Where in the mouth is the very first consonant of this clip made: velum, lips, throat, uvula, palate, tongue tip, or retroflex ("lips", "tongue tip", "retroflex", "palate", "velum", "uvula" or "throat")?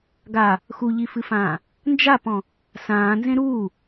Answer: velum